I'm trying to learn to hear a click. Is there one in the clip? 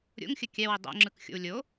yes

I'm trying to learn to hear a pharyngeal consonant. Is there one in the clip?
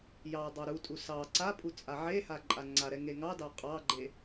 yes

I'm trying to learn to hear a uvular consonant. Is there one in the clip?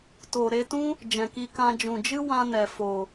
no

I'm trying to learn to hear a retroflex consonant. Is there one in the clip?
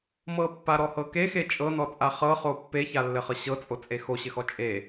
no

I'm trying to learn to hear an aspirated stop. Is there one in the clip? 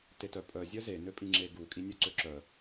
no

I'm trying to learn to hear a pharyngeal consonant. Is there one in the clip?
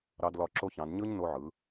yes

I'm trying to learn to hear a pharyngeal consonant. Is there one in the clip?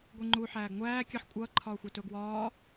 yes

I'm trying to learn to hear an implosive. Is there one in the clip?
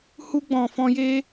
no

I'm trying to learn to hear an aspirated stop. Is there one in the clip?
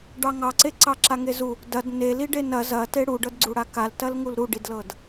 no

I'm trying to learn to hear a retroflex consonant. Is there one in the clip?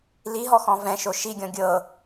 no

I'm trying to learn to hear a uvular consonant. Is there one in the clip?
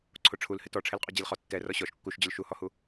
yes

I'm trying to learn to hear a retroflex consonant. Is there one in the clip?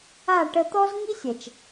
yes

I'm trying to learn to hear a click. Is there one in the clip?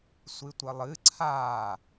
yes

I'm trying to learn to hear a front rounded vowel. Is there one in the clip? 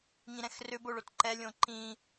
yes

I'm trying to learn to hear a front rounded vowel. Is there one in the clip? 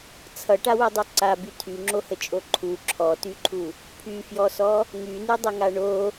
yes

